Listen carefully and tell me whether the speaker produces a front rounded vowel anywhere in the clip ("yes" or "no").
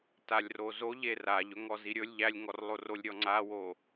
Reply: no